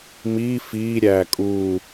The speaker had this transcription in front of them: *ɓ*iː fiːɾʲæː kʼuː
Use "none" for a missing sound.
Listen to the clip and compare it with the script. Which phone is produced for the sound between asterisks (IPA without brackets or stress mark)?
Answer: m